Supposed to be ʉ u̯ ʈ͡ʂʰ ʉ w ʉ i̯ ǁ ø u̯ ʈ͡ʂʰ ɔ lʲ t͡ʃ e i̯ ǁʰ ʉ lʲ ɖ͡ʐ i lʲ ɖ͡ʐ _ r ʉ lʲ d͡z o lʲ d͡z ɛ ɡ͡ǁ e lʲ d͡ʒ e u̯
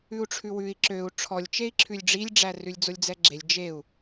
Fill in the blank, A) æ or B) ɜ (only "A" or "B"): A